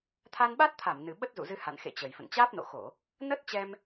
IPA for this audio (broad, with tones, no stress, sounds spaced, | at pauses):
t̪ʰ a˧ n ɓ a˦˥ t̚ t̪ʰ a˧˩ m n ɨ˨˩ ɓ ə˦˥ t̚ z ṵ˧˨ z ɨ˧ h a̰˧˨ n x ḛ˧˨ t͡ɕ ə˨˩ j f ə̰˧˨ n t͡ɕ aː˦˥ p̚ n o̰˧˨ x o˧˩˨ | n ə˦˥ t̚ t͡ɕ ɛ˧ m